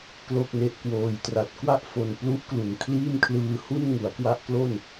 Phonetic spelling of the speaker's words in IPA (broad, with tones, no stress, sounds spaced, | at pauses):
k l o˥˩ k̚ n e˦˥ ʔ k w oː˧ j t r a˦˥ t̚ k w a˥˩ ʔ f o˧ n p l u˦˥ ʔ k l u˨˩ n kʰ l iː˥˩ m kʰ l ɯː˧ h u˥˩ n ŋ u˩˦ a̯ k w a˦˥ ʔ k l o˥˩ n